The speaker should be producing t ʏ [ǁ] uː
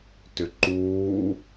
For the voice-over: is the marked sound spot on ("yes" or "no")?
no